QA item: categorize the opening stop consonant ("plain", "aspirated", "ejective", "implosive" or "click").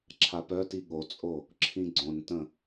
click